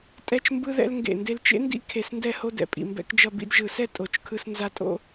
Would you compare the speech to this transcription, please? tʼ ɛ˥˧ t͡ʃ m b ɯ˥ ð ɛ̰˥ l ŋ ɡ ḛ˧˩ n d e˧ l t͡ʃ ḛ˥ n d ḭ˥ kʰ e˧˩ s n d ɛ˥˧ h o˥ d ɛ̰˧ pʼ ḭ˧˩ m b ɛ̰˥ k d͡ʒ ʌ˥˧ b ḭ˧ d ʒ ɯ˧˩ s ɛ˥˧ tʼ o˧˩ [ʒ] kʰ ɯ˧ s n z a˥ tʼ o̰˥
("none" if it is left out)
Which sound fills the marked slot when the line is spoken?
t͡ʃ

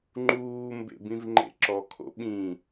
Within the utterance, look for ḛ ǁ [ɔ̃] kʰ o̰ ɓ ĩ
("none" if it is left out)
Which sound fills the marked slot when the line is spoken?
ɔ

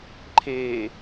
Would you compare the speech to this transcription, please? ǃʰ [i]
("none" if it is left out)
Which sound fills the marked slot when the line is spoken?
e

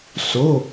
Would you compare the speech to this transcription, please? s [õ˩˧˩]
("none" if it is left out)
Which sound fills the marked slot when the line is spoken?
o˩˧˩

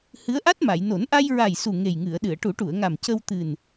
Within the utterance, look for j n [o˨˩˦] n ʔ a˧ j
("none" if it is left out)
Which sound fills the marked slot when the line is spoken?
o˨˩˦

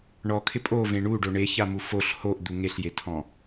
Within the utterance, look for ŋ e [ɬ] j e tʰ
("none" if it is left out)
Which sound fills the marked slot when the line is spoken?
ɬ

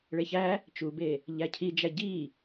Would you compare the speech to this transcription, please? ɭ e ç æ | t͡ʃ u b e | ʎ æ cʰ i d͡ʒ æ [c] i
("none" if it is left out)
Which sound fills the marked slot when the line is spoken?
ɟ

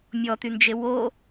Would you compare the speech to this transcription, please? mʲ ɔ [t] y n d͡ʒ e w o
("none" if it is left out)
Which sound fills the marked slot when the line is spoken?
t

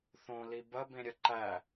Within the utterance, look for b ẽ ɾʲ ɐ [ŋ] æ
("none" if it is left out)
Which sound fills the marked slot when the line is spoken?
ǃ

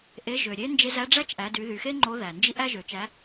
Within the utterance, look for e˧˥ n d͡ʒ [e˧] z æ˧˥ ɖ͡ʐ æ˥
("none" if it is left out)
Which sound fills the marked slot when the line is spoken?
e˧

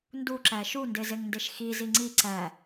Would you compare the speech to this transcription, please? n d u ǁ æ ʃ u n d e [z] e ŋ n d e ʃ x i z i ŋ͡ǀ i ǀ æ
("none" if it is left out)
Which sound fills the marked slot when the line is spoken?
z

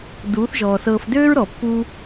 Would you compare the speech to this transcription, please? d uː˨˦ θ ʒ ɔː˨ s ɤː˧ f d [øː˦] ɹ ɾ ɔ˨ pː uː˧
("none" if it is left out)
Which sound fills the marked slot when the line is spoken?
øː˦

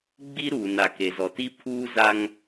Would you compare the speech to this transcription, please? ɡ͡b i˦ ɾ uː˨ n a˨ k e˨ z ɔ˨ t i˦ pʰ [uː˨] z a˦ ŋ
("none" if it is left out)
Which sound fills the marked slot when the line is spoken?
uː˦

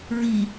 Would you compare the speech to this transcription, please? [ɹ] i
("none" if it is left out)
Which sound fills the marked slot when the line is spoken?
ɹ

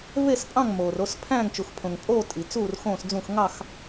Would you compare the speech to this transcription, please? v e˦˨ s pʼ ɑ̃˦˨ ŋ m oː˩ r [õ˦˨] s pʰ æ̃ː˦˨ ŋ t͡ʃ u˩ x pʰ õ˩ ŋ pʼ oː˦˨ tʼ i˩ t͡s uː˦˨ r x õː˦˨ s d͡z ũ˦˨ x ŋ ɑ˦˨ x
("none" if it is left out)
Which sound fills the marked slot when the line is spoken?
o˦˨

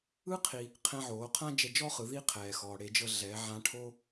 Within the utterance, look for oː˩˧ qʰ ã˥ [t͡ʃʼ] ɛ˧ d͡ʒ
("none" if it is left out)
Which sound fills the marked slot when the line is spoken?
d͡ʒ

